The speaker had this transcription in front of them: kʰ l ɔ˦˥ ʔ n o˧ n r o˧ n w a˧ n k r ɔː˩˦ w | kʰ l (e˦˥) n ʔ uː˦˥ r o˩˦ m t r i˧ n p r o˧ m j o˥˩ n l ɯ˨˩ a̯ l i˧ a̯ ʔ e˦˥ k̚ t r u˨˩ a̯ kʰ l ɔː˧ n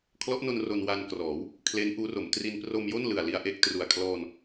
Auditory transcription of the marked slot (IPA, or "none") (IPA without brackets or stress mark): e˦˥